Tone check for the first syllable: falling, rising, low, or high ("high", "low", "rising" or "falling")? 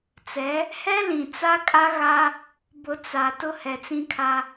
rising